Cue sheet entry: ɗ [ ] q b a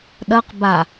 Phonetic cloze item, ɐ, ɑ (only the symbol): ɐ